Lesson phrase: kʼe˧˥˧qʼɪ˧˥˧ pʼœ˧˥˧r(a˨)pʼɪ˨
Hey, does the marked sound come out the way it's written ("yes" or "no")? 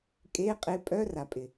yes